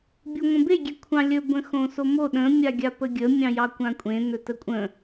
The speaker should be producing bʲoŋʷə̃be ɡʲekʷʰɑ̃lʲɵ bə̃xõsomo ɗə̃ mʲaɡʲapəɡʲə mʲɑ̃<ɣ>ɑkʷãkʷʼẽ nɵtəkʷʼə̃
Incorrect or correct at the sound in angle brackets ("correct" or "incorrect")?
incorrect